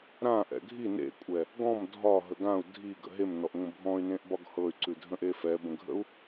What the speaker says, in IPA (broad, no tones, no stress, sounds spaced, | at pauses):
ɾ ã ʔ ɛ̰ ɡʱ i n ḛ kʷʼ ɛ | ɡ ɔ̃ m dʱ ɒ ɦ ə ɡ ã u̯ dʱ i ɡ ə̰ ɦ e m n ɔ ʔ ŋʷ ə̃ bʱ ɔ̃ y̯ n ẽ ʔ b ɒ ɡ h ɤ y̯ ǀ ʉ dʱ ə̃ ʔ e f ɛ b ə̃ ɡʱ ə̰ u̯